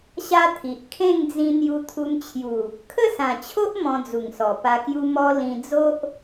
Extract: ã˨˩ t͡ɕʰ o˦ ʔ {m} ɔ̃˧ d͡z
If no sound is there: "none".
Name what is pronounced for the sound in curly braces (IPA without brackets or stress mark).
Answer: m